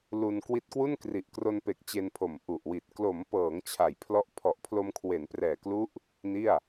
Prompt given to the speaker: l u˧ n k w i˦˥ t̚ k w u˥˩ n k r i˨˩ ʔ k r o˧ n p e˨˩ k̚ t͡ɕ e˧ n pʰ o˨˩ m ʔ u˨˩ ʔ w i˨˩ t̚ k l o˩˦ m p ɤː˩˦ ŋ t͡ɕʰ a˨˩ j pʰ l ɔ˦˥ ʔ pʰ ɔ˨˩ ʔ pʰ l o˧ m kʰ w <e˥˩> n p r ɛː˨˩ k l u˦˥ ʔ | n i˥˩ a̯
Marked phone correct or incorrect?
incorrect